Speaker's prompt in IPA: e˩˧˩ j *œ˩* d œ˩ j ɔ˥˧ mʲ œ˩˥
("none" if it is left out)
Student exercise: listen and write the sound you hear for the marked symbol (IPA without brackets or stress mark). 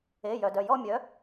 œ˩